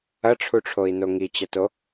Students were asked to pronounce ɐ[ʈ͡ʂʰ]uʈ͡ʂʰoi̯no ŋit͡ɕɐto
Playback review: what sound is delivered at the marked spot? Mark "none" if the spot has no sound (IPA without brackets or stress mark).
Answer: ʈ͡ʂʰ